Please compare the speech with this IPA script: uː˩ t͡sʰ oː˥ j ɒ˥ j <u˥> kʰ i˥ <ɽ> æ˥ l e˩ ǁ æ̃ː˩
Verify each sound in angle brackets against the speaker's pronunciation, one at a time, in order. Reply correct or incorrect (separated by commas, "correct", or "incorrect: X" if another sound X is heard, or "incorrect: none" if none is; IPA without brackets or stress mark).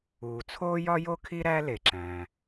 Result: incorrect: o˥, incorrect: ɾ